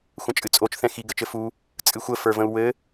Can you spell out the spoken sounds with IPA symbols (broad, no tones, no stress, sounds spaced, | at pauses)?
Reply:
xʷ ə̃ t͡ʃʼ ɨ t͡sʼ o t͡ʃ θ ɛ̃ x i ɡ ɘ t͡ʃ ɘ f u | t͡sʼ ɨ xʷ ə f ə˞ v ə̃ u̯ w ɘ